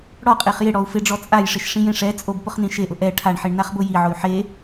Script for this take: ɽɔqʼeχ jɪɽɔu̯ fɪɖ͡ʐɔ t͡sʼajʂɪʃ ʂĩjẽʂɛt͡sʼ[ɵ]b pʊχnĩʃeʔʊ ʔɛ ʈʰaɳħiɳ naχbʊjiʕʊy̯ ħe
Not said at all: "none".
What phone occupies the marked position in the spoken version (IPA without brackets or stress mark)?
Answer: o